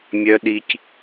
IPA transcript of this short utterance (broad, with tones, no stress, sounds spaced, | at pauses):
mʲ œ˦ ɗ i˦ c